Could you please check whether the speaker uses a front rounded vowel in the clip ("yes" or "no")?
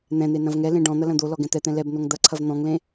no